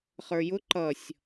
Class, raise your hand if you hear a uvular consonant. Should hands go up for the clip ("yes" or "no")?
yes